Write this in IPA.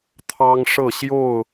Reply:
t̪ʰ ɑ˦ ŋ ʂ ɤ˥˨ ɕ j o˥˨ ʊ̯

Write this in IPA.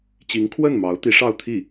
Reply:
t͡ɕ i˧˥ ŋ kʰ w ə˥˩ n m ɑ˧˥ ʊ̯ t̪ i˧˥ ʂ ɑ˥˧ ʊ̯ t̪ʰ i˥˩

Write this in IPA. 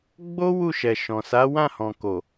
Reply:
ɡ͡b o˦ w u˦˨ ʃ ɛ˨ ʃ ɔ̃˨ s a˨˦ w ã˦˨ h ɔ̃˨ k o˨

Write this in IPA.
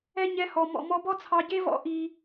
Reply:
ɛ˥ ɲ ɛ˦ h ɔ˦ m ɔ̰˦ m ɔ˥ b ɔ˥ t͡sʰ ɑ˦ ɟ e˥ v ɔ̰˥ ʔ i˦

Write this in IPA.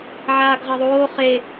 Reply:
ʕ aː ɡ ʁ ɐ ðˤ oː χ e

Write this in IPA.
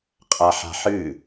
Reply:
qʼ a ħ a̤ ħ ɨ

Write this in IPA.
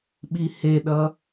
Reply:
ɓ i h e ɗ ʌ

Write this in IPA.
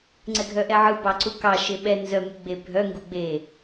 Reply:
ŋ͡ǀ ɛ ɡʱ œ ʔ ɛ ʕ ɯ b ɑ ǀ u k ɑ ʃ e ɓ ɛ n z œ m u ɡ͡b e bʱ œ ŋ ɡ u ɡ͡b e

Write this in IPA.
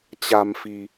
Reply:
t͡ɕ a̤˨˩ m f i̤˨˩

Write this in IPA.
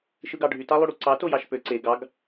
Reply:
ʃ ɯ ɡ ɑ ɖʱ y t ɑ lˠ y ɽ u ǀ ɑ t o j ɑ ʃ p ø ǀ e ɡ ɑ ɡ

